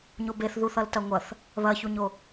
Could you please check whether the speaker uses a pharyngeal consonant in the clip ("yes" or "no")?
no